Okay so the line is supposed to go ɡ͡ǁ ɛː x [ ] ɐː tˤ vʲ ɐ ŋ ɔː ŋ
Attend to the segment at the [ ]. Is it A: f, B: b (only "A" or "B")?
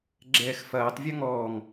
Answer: A